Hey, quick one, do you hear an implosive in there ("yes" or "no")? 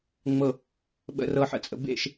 yes